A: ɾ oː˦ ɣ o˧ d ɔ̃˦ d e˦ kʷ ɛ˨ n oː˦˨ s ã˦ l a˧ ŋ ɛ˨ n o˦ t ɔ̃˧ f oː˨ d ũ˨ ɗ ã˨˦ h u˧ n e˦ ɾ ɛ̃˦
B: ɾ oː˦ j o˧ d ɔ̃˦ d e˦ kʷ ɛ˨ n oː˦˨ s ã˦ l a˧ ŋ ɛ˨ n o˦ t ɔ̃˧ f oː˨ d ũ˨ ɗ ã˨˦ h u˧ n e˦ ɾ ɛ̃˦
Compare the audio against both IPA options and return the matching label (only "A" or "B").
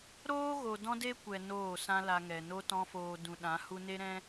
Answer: A